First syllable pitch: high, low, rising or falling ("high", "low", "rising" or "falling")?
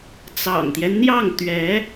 low